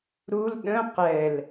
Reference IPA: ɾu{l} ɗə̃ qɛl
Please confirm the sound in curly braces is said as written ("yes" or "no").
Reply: yes